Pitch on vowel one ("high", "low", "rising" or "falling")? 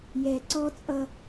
low